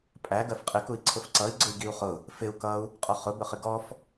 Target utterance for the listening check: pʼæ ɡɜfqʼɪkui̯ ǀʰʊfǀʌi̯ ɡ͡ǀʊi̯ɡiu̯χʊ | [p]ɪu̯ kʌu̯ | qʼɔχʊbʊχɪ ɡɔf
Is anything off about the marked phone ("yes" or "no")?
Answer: yes